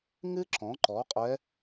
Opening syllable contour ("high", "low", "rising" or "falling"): high